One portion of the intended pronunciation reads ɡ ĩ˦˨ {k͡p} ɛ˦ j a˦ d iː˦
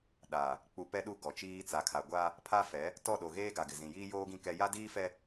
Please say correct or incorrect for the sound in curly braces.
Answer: incorrect